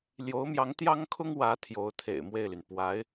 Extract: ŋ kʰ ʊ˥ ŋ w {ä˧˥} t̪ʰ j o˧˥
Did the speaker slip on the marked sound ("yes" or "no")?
no